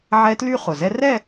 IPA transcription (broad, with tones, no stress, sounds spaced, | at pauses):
ʕ ɛ˦˥ t l y˥˧ χ ʊ˨˩ z ɛ˦˥ r ɛ˥˧